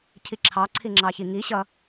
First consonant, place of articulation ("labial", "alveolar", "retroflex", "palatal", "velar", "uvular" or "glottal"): palatal